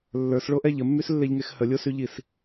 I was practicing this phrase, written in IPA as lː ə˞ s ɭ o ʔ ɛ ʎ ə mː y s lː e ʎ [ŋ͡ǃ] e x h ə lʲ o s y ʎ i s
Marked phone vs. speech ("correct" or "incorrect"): incorrect